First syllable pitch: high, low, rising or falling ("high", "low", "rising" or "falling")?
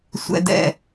low